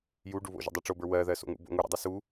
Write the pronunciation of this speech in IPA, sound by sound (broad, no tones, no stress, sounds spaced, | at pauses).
j u ɖ u β o̰ ʒ ə̰ dˤ ɜ ʈ͡ʂ o b ə˞ w ɜ ð ɜ s o̰ ŋ ṵ b o̰ ŋ u ɾ ṵ dˤ u s u